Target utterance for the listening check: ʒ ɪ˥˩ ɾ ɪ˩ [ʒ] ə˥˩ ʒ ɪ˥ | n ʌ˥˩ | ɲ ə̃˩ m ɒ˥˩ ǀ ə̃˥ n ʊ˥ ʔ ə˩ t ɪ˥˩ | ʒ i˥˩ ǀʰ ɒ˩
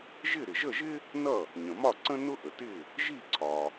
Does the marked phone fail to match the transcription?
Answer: no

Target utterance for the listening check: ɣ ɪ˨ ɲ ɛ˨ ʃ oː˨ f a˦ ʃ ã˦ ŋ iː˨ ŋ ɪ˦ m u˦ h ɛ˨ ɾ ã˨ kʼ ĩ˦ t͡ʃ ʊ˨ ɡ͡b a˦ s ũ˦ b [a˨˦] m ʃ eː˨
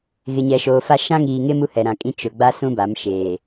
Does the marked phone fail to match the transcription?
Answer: no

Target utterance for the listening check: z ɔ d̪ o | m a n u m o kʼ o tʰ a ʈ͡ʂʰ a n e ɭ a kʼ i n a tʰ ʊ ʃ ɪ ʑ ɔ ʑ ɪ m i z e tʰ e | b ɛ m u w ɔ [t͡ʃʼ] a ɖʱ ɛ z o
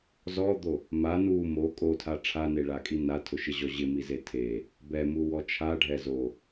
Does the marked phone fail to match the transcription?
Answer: yes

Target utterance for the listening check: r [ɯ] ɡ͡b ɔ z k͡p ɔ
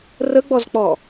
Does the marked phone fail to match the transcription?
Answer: yes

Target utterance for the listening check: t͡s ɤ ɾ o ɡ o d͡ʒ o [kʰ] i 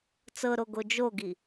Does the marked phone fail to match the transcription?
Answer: yes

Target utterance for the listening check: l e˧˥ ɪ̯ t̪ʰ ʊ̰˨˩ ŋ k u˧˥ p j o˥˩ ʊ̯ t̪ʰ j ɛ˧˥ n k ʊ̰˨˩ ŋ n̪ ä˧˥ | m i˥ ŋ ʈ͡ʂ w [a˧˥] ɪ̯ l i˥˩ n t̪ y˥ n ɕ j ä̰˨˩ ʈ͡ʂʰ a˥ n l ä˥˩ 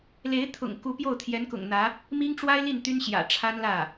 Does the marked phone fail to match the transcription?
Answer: yes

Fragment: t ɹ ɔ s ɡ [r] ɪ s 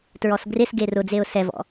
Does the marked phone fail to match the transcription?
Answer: no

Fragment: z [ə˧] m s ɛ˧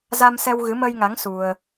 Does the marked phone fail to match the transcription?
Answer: yes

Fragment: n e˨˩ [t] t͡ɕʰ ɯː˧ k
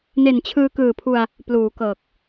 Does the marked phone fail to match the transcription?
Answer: yes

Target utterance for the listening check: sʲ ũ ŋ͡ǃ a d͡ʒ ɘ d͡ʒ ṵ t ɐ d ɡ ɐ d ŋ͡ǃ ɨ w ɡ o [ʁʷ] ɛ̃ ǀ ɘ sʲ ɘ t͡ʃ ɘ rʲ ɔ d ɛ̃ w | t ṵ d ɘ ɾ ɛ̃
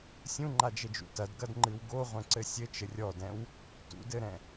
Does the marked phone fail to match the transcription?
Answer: no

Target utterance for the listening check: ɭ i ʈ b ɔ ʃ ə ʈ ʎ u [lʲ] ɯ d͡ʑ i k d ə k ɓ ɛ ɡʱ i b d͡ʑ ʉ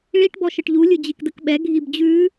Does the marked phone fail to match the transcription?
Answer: no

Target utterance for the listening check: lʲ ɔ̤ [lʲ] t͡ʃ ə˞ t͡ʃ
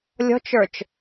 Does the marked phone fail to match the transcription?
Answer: yes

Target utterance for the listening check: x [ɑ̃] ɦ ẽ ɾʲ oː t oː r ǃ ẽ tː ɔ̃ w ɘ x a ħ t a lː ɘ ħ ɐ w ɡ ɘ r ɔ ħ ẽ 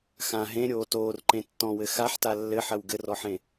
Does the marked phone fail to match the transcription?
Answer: yes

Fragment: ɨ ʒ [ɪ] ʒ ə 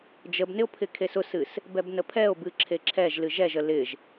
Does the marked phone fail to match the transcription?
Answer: yes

